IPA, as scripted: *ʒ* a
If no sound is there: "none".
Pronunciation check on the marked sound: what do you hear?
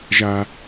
ʒ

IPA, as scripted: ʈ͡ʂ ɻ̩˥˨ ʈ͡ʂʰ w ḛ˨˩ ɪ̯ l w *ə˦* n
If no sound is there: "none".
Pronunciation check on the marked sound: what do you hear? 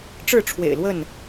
ə˥˨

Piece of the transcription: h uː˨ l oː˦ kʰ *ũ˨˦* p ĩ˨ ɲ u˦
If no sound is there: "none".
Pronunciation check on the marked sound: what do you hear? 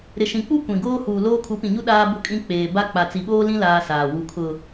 u˨˦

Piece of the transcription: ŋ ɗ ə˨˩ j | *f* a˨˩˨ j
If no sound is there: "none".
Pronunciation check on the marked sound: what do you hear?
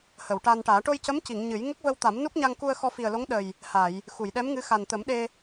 h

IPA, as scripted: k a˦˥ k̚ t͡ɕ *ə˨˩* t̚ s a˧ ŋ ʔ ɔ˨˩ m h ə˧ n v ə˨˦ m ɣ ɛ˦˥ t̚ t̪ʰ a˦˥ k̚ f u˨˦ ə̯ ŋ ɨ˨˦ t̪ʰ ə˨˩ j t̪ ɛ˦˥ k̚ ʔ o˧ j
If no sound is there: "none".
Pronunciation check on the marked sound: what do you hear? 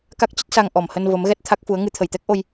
ə˦˥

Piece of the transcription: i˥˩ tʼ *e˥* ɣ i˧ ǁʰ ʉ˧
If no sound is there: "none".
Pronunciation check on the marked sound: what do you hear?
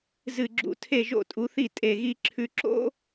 e˧˩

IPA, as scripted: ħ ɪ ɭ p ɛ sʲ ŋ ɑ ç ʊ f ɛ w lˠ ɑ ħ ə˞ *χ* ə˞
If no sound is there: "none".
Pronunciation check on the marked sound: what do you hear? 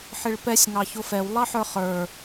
χ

